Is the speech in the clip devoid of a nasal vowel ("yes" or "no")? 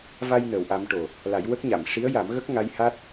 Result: yes